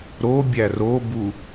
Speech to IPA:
ɾ o bʲ æ r o b u

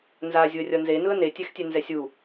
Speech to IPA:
n z a zʲ u ə̯ rʲ ʌ n z e n ɯ ə̯ n e tʲ ɛ x tʲ ɛ n z ɛ sʲ u

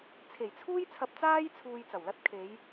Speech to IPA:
t͡sʰ e˨˩ j t͡sʰ uː˥ j t͡sʰ ɐ˧ p̚ t͡s aː˥ j t͡sʰ uː˧ j t͡s ɐ˨˩ w l ɐ˥ t̚ kʰ e˨˧ j

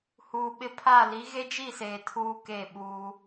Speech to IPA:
h uː˨ ɓ ɪ˦ pʰ a˦˨ l i˨˦ ɣ e˦ d͡ʒ i˦˨ s eː˨ tʰ uː˦ k e˦˨ ɓ uː˦

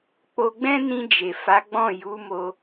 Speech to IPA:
k͡p o˧ ɡ͡b ɛ̃˦ n ĩ˧ d͡ʒ e˨ f a˨˦ ɡ͡b ɔ̃˦˨ j u˨˦ m o˧

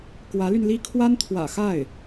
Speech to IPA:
k w ä˧˥ l y˧ n l i˥ kʰ w a˥ n t̪ʰ w ä̰˨˩ x a˥˩ ɪ̯

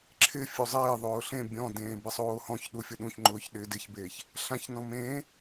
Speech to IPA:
ǁʰ ɪ fʲ u zˤ ɪː ðˤ ʊː ɬ ẽ bʲ ɔ̃ d ẽː b ɪ sˤ oː h ɔ̃ ç ɗ u fʲ o ɗ ũ ç ŋ͡ǃ ʊː ç ɗ ɪː d ɪ ç b eː ç | ɬ ã ç n ɔ̃ m ẽː

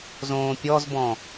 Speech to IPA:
z õː pʲ ɔ z b ɔ̃

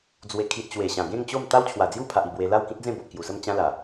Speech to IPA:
d͡z w e˨˩ kʰ i˨ t̚ t͡ɕ w e˨˩ ɕ ã˨˩ ɡ ẽ˥˧ ŋ t͡ɕ o˥˧ m t̪ a˦ w t͡ɕʰ w a˨˩ d͡z j u˥˧ pʰ a˨ ʔ i˥˧ b w e˧ l a˥˧ w k ĩ˦ t̚ d͡z ẽ˥˧ b o˨ ʔ k j u˨˩ s ə˥˧ m t͡ɕ ã˦ l a˨˩

